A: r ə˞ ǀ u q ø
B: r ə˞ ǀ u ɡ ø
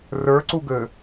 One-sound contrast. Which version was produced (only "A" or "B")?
B